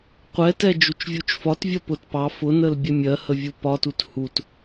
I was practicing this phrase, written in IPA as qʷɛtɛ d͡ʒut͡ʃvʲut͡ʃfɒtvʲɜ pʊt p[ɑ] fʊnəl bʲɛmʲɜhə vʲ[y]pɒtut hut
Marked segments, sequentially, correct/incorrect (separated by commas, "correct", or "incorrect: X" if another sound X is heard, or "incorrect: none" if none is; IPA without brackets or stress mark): correct, incorrect: u